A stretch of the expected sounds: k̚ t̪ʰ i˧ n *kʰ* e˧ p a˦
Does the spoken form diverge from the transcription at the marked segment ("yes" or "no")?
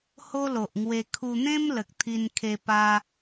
no